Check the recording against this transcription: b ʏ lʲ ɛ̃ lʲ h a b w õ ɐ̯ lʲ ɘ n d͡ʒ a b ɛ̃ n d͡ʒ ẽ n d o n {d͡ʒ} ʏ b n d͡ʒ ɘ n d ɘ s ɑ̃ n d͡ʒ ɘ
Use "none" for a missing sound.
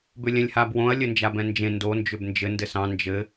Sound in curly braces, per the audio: d͡ʒ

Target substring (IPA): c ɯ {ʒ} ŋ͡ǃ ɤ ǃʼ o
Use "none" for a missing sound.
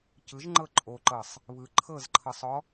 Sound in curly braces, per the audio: ʒ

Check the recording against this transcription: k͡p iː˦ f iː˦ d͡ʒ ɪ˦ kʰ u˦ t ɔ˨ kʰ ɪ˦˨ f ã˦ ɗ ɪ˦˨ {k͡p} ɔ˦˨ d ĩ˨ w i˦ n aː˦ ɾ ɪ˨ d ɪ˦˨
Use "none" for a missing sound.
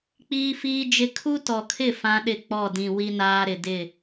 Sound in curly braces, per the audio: k͡p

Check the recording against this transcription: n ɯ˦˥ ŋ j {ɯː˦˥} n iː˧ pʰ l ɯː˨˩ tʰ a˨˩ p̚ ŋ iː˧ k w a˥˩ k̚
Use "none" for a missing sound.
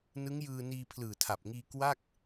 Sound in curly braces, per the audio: ɯː˧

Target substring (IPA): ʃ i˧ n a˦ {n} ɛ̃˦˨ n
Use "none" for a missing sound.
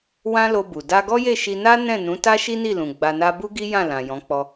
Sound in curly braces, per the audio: n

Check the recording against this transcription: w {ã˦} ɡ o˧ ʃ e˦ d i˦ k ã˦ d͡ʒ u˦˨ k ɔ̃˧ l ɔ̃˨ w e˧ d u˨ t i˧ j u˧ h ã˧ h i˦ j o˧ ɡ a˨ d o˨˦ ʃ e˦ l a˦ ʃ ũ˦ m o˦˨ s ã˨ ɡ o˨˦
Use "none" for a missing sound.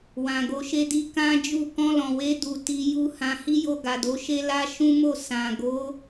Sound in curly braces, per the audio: ã˨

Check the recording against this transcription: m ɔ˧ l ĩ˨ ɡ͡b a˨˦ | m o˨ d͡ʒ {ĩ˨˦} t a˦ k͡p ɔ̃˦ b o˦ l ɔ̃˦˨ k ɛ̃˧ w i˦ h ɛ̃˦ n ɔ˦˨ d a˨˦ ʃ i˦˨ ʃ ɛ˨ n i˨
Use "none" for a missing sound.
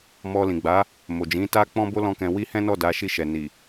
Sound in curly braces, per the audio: ĩ˨˦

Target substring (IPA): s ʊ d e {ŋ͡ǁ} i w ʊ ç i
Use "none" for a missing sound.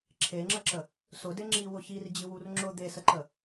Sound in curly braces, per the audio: ŋ͡ǁ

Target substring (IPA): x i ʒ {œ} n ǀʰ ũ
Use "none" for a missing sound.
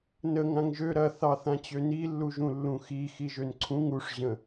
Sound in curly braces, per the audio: ø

